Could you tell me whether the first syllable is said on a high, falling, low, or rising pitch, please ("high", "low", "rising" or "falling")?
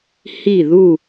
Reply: falling